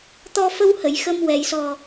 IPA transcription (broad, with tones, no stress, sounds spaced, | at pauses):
t̪ ɔ˧ f ə˧ w h ə˨˩˨ j x ə˧ m w ɛ˨˩˨ j s ɔ˨˩